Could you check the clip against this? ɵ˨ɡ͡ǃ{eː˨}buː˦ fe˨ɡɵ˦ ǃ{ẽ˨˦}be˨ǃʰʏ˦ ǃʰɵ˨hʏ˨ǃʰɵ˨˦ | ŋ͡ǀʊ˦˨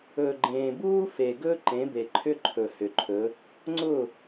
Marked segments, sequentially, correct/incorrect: incorrect, correct

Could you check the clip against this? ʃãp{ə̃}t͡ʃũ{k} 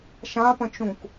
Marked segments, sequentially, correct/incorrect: correct, correct

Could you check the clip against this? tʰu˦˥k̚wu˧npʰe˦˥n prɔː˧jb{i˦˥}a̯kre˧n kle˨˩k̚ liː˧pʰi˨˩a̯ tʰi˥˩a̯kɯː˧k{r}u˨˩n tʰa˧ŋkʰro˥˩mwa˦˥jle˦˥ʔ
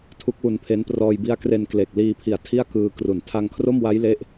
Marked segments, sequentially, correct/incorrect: correct, correct

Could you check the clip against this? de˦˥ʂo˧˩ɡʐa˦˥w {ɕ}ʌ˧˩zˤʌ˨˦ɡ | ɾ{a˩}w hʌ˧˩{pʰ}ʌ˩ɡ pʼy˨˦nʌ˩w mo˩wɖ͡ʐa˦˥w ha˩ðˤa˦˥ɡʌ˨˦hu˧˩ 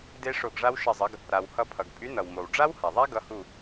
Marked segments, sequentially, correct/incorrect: incorrect, correct, correct

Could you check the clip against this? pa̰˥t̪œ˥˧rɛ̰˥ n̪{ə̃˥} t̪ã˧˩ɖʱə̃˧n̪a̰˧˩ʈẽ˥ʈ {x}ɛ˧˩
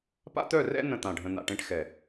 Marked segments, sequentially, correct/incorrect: incorrect, correct

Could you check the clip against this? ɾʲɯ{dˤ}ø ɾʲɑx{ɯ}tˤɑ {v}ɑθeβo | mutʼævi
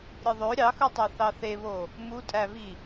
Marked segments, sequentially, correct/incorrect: incorrect, correct, incorrect

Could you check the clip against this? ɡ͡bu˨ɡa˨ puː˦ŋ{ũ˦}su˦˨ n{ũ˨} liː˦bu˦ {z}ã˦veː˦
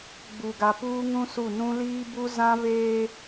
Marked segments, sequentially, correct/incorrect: correct, incorrect, correct

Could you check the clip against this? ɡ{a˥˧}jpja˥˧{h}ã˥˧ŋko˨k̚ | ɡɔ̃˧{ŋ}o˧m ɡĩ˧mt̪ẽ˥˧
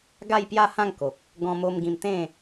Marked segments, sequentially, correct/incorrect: correct, correct, incorrect

